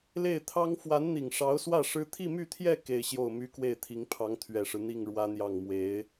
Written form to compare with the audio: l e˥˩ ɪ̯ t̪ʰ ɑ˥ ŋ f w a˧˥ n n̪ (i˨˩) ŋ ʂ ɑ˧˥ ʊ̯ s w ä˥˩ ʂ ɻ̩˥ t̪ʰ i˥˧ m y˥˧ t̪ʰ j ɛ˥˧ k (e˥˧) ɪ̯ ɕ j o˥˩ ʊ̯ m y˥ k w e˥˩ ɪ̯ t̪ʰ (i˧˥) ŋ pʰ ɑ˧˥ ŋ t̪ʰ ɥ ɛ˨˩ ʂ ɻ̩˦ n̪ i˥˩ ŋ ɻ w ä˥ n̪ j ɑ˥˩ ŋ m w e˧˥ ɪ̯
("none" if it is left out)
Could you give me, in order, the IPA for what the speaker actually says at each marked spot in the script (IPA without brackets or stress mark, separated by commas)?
i˨˩, e˥˧, i˧˥